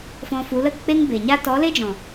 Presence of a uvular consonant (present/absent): absent